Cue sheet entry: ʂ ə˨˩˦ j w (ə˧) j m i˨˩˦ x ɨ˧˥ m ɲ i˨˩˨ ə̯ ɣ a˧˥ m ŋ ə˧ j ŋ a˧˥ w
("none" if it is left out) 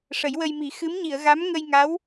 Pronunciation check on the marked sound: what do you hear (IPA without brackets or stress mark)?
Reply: ə˧